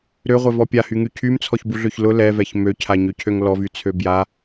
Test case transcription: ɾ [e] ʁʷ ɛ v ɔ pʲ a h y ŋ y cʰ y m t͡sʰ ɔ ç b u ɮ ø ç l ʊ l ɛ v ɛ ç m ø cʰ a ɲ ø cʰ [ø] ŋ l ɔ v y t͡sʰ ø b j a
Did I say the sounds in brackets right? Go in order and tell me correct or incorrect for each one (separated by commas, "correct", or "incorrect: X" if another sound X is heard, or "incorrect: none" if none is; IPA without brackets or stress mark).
incorrect: ø, correct